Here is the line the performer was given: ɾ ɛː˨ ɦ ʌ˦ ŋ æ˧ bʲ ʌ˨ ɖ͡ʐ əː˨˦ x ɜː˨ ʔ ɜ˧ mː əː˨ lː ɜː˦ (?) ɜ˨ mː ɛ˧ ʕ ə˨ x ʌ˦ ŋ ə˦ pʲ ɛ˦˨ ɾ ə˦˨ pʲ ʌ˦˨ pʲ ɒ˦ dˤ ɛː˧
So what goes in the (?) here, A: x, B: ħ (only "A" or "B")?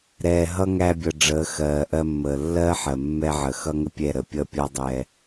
B